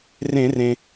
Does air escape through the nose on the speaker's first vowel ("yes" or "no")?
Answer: yes